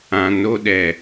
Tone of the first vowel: low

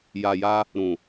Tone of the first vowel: low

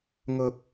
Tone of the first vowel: low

